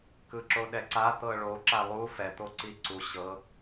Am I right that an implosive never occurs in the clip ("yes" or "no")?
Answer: no